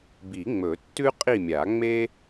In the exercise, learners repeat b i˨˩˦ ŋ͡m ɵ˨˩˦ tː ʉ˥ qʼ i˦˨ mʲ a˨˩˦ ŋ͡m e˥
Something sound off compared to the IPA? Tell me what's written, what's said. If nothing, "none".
none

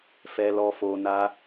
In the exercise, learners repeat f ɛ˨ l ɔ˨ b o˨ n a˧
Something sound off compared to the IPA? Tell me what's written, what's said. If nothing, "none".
b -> f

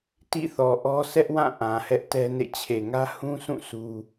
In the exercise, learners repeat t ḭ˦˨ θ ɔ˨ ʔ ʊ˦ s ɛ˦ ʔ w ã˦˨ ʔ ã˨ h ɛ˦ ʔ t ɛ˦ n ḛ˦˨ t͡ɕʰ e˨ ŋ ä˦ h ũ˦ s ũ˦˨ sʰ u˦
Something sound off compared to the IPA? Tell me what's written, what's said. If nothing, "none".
ʊ˦ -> ɔ˦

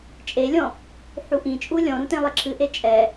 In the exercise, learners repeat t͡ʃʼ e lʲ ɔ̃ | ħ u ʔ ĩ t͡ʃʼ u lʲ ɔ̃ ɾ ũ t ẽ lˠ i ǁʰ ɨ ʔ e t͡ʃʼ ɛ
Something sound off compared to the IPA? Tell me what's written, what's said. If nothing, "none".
none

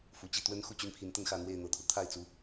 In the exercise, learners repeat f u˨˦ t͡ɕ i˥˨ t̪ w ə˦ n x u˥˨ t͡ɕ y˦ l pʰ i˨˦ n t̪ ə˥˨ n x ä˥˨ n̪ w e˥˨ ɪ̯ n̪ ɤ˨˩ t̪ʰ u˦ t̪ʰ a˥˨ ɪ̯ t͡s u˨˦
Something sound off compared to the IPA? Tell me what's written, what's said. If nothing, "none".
l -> n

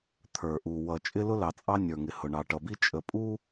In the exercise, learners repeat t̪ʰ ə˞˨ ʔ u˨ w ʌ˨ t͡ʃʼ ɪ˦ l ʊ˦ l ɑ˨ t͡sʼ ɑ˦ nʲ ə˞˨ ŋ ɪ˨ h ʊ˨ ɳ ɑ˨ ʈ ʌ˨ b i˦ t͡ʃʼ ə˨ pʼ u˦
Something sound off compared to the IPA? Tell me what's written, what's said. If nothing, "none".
none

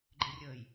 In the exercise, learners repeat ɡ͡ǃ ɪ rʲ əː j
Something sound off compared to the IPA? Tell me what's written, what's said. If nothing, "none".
none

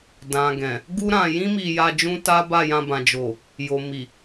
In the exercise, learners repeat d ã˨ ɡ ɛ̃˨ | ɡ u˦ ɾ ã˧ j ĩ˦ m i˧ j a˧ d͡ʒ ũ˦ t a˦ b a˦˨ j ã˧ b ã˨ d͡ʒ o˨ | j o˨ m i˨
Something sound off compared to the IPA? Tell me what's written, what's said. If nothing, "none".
none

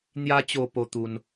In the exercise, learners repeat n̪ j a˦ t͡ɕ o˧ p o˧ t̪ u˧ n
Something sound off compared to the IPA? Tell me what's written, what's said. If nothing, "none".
none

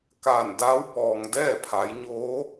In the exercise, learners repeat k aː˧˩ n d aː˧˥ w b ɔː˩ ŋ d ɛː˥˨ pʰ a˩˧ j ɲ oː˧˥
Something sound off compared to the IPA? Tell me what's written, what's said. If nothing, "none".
none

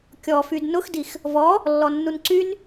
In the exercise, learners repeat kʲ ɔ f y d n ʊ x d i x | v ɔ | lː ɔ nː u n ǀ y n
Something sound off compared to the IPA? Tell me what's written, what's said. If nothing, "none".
none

